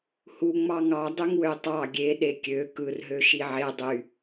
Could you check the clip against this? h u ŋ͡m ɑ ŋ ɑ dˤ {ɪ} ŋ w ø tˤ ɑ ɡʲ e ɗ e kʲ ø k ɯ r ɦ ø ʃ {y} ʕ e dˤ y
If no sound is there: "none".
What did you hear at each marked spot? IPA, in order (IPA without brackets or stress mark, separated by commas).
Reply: y, i